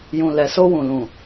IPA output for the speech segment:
jũ˨lɛ˨so˧wũ˨ lũ˨

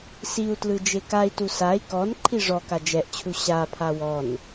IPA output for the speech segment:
siu̯tlɯ d͡ʒekai̯tu sai̯ kɔn ǃʰiʐɔka d͡ʒɛʔt͡ɕʰu ɕapʰa wɔn

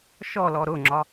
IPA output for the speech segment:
ʃɔlɔ ɾʊŋ͡ǁɒ

